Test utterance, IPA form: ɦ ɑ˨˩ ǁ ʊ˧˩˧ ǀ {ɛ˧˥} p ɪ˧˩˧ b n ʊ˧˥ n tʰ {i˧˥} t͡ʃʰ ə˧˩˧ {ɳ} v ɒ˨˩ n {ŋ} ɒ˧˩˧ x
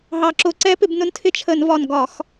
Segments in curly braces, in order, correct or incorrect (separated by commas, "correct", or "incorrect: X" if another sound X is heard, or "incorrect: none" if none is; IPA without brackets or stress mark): correct, incorrect: ɪ˧˥, incorrect: n, incorrect: ɡ